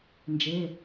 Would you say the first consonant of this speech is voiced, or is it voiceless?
voiced